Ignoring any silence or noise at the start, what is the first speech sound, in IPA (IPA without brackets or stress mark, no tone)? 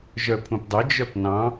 ʒ